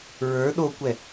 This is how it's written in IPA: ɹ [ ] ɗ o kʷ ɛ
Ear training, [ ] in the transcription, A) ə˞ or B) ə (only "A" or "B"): A